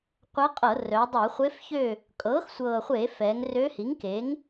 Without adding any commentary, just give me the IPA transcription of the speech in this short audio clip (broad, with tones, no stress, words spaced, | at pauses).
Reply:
qʷɛ˧˥qʼɤ˧˩˧ rœ˩˧dˤɤ˧˩˧χʷe˧˥fçø˥˨ | kʼɤː˩˥xsʷɤː˨˩χʷe˧˩˧ fɛ˩˧ŋ rø˧˥hi˩˥ŋ keː˩˥ŋ